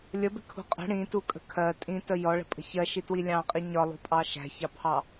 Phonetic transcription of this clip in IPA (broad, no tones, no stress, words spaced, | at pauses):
lʲəbɪkʰṳ qʼə̤ ɽĩtukʼə̤ kʰɜ tʼĩtə jɔɭə̤pʼə̤ çɜʃitwi lʲɑ̃qʼi ɲɒlˠṳpʼɑ ʃæ̤çɑpʰɑ